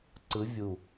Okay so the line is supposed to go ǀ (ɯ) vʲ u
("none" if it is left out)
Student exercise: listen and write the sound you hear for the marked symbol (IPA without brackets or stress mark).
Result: ɯ